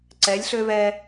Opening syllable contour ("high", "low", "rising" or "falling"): rising